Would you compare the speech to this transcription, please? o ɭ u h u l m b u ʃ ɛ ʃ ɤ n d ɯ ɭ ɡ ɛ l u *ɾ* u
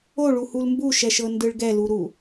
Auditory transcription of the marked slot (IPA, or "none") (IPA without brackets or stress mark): ɾ